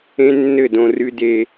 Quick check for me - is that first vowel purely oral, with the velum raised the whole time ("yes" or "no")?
no